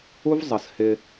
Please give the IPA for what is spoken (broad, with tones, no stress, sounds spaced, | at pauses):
u˦ v zˤ ə˨ s h ɪ˦